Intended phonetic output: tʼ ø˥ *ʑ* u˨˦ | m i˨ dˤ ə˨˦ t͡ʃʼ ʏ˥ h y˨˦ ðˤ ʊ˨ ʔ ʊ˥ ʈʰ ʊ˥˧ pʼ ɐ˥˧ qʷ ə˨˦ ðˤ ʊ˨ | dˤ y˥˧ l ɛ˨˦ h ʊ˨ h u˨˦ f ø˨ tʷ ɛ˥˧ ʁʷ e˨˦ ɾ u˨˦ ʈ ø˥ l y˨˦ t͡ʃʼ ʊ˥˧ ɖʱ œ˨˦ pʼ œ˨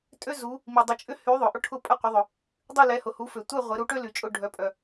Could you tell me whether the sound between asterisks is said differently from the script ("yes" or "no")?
yes